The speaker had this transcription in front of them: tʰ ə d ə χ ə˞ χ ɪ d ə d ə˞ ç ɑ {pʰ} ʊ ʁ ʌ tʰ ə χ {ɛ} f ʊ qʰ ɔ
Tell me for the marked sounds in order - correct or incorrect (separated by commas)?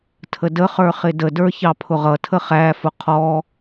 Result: correct, incorrect